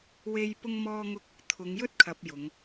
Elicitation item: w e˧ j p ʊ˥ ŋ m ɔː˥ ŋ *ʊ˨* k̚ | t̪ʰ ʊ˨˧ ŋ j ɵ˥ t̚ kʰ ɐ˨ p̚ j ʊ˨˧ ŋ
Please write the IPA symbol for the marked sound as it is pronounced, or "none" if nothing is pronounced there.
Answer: ʊ˥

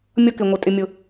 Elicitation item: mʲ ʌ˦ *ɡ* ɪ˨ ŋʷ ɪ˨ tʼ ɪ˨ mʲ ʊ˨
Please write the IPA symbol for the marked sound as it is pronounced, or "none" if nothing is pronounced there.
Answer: k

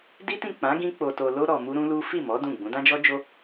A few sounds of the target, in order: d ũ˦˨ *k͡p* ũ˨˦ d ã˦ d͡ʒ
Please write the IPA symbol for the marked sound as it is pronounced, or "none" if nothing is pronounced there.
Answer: ɡ͡b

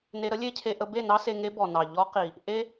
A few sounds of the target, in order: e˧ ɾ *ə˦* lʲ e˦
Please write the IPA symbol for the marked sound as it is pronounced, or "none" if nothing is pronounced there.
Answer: ə˦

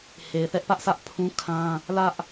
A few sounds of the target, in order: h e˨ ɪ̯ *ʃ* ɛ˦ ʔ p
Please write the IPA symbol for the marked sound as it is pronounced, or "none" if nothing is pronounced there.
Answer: θ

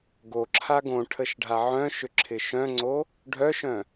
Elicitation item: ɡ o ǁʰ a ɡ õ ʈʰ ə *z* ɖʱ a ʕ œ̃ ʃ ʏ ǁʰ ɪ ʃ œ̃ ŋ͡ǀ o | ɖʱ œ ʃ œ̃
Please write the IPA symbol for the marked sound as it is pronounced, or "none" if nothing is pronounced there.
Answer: ʃ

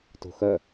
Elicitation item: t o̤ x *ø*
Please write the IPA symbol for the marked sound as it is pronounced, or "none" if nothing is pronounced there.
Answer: œ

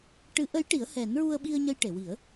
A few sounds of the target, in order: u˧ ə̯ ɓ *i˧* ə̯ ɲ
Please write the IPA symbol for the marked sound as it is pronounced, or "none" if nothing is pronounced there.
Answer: i˧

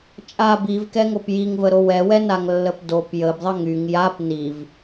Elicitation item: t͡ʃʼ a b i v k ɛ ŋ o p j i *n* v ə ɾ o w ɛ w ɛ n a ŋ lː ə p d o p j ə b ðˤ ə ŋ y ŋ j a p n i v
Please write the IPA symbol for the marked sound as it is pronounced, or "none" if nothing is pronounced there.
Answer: ŋ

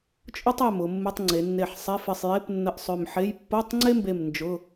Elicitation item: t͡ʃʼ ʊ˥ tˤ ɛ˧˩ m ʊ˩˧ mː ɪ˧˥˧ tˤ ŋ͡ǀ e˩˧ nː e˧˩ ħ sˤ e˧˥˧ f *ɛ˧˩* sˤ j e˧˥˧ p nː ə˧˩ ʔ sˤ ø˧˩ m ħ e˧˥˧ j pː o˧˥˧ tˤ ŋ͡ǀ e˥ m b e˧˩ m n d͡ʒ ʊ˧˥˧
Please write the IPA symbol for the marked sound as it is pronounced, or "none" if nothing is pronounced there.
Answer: ɪ˧˩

